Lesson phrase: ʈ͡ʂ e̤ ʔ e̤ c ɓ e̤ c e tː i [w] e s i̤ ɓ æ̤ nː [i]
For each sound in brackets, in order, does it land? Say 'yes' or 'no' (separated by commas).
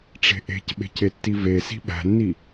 no, yes